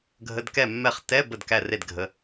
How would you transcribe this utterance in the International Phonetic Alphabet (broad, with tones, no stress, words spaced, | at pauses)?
ɡʱə˧˥˧dkɛ˥˨ mːɛ˥˨χ tɛ˧˥˧ bə˥˨dkæ˥˨re˥˨d ɡʱə˧˥˧